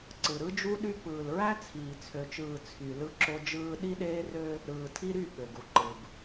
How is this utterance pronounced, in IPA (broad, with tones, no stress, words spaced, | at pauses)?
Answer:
ǀɯ˨ɾɯ˦d͡ʒu˦ɗy˦ pɯː˨lɹæ˦ t͡sʰiː˨t͡sʰø˨t͡ʃɯː˨ t͡sʰy˨ lɯ˦ǁo˦d͡ʒɯː˦ ɗi˦ɗeː˦rø˦ | ɾɯː˨tʰi˦ɾy˦˨ ɓø˨ɡu˨ǃɯ˨b